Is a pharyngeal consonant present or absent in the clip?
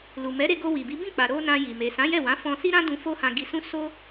absent